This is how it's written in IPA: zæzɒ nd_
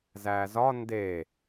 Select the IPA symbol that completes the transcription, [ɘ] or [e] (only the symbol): e